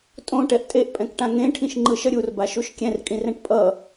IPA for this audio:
tʼ õ ʈ ɛ ʔ tʼ e ʔ pʼ ɛ̃ k ʈ ã ŋ ẽ ʈʰ ĩ ʃ ŋ͡ǃ ɯ ʃ ʌ ɾʲ u r b a ʃ u ʃ kʲ ɛ̃ r kʼ ĩ r ɛ̃ ʈ pʼ ʌ

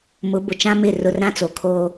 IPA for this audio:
m ʊ˨˦ b ʊ˨ t͡ʃ ã˦ m ɪ˦˨ r ʊ˦˨ r ɾ ã˦ t͡s o˨ kʰ oː˦

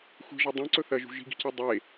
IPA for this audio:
xʷ i̤ ʒ ɐ dˤ ẽ ǀ ɵ θ ɐ ʒ ṳ ʒ i̤ ɡ i̤ c e dˤ e

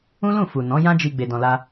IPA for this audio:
ũ˦ l ũ˦˨ f u˨ n ɔ̃˨˦ j ã˦ d͡ʒ i˧ ɡ͡b e˧ d ɔ̃˧ l a˦

